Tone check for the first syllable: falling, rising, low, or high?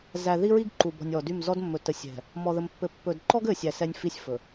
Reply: low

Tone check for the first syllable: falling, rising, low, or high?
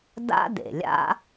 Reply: high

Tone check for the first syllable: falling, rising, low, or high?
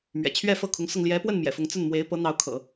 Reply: low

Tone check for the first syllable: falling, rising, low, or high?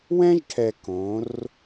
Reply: high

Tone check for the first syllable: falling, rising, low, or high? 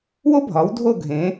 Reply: high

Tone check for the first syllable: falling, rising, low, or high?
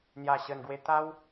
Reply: low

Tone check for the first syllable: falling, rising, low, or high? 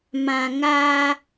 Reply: low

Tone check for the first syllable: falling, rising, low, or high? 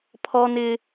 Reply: high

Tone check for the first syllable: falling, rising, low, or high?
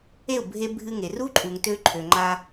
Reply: falling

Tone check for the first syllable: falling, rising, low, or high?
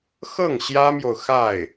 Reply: falling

